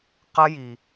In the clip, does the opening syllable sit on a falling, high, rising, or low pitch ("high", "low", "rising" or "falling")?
high